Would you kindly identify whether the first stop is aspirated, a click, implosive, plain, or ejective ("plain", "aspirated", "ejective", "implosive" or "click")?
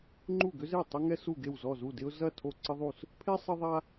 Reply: click